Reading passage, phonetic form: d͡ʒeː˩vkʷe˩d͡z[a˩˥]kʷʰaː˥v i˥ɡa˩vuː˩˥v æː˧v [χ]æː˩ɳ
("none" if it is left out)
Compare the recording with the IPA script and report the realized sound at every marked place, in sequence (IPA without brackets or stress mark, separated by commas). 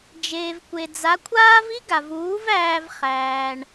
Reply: a˩˥, χ